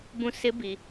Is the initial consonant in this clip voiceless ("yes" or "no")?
no